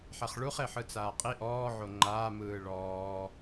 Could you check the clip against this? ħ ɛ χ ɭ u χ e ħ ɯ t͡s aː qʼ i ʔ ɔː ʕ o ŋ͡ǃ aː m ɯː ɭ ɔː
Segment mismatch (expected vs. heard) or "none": none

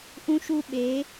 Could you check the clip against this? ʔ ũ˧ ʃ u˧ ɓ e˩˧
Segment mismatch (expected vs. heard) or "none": none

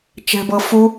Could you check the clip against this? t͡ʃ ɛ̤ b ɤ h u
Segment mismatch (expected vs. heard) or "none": h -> f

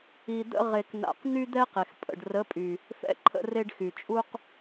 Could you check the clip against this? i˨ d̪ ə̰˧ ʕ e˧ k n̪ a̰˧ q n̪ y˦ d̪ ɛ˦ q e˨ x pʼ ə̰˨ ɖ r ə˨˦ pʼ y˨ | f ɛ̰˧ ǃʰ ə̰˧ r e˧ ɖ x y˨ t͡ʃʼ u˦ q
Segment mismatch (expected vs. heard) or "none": ʕ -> ʁ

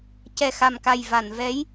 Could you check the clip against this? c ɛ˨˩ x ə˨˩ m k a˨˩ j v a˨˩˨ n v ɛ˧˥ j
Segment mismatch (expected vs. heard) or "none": ə˨˩ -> a˨˩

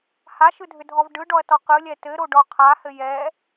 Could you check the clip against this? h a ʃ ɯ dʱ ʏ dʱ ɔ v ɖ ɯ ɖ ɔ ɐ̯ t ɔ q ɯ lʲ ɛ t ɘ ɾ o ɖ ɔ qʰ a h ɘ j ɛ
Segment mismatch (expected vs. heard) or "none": none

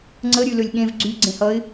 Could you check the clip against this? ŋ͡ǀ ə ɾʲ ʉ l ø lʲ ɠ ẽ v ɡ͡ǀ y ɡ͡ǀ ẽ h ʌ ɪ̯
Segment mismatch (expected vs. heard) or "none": none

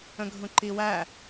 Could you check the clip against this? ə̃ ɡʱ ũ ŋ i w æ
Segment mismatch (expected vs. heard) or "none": ŋ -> ǃ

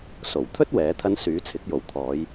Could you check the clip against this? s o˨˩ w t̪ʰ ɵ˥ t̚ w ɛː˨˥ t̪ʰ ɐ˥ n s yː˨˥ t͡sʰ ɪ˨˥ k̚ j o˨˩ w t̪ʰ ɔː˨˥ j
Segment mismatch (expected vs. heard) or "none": ɔː˨˥ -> ɔː˨˧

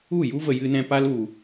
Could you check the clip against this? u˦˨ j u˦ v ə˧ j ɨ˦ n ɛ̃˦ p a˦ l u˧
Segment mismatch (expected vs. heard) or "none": none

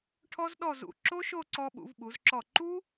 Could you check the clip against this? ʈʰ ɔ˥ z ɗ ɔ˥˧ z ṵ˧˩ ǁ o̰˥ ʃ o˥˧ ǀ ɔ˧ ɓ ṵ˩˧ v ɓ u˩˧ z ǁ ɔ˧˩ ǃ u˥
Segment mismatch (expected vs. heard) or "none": o̰˥ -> o˥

